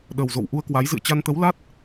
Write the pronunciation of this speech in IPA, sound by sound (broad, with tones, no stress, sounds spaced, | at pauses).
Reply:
ɗ ə˨˩ w z o̰˧˨ w ʔ u˧ ə̯ k w a˨˦ j z ɨ̰˧˨ ə̯ t͡ɕ a˧ n t̪ ə˨˦ w l a˦˥ t̚